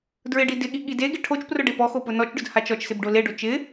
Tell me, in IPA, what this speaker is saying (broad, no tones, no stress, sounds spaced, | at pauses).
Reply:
d ɹ ɪ ɖ i d ɪ ɠ i ɠ i d e ɡ ɪ ʈʰ o t͡ʃ p r ʊ ɖ e p ɔ x o p ʊ n ɔ t͡ʃ ɖ ʊ d h a t͡ʃ ɔ t͡ʃ s ɪ b ɖ o l e ɖ o t͡ʃ ɪ